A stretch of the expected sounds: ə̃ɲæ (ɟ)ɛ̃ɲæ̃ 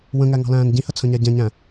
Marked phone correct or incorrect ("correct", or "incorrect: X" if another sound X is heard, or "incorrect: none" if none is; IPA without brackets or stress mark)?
correct